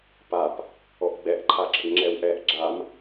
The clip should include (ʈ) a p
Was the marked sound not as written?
yes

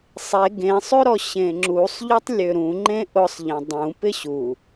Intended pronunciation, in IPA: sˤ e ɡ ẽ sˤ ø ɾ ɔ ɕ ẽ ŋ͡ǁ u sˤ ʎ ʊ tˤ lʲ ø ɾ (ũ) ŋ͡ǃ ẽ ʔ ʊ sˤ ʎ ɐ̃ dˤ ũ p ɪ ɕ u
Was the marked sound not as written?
no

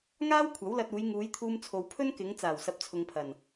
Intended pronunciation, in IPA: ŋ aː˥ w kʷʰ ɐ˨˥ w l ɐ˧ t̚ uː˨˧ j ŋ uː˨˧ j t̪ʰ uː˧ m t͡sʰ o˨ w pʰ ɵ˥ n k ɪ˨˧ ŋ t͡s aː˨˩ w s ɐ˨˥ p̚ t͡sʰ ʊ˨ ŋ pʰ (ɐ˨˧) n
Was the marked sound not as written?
yes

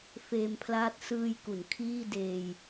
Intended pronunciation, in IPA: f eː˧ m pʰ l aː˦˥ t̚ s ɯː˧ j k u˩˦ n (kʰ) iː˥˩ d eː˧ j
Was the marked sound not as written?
no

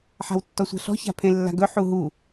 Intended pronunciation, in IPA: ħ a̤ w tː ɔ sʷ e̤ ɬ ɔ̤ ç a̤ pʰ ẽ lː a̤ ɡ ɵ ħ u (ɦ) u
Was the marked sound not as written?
no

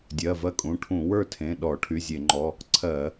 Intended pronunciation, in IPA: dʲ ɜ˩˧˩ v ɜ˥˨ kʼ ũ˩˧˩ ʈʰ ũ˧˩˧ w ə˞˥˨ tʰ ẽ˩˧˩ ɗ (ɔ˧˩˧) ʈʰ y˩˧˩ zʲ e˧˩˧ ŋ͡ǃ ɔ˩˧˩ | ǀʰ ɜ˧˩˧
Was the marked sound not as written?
no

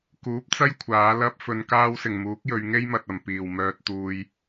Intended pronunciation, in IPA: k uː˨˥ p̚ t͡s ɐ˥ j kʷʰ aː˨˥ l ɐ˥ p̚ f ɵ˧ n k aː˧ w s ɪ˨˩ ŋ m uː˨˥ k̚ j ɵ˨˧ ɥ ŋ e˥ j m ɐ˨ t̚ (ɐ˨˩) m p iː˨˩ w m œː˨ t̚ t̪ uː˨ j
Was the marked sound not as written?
no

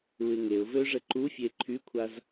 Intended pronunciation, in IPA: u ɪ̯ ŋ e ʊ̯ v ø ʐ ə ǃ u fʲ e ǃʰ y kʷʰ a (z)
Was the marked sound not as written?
no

